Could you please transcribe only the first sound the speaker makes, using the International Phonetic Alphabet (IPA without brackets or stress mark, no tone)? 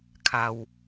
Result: kʰ